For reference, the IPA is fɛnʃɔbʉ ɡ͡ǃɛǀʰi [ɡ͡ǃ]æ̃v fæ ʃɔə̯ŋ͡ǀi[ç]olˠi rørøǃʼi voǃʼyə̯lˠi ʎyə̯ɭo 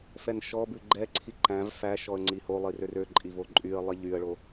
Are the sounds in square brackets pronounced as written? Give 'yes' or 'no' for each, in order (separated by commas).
no, no